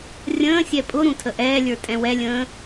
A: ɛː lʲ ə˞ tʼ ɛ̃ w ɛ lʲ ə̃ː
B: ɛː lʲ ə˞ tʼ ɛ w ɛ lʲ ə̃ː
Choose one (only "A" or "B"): A